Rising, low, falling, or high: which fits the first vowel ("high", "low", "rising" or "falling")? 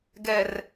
low